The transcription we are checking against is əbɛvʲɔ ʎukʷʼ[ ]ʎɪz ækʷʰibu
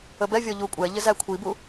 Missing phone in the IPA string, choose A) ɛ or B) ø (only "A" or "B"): A